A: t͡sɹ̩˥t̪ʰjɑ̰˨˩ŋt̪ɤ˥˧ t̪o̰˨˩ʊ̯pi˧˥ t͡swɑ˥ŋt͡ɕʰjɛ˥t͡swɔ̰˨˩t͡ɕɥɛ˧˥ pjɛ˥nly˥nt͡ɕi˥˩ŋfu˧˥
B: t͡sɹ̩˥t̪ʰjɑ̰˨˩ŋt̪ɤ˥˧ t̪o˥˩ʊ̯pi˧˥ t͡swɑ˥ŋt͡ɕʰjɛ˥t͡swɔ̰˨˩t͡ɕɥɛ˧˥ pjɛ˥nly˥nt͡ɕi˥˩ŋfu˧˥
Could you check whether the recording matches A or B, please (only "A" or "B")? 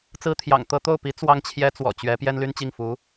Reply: B